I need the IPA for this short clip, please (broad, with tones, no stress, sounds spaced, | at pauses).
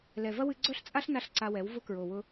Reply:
l ɛ˨ v ɐ˦ w ɨ˧ ɡ͡ǀ œ˦ ɬ t͡sʼ a˦ ɬ n a˧ ɬ ǀ a˧ w ɛ˨˦ w v ʊ˧ k ɹ o˨ w ʊ˧